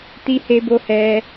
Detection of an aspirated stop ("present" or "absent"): absent